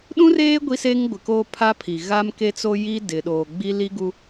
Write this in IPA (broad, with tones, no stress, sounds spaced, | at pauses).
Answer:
ɗ ũ˦ r eː˦ ɡʷ i˦ s e˦ ŋ ɡʷ ɪ˨ k oː˦ pʰ a˦ pʰ i˨ ɣ a˦ m k e˦ t͡s o˦ j i˦ d ɪ˨ ɗ oː˨ ɡ͡b i˦ l i˦ ɡ u˦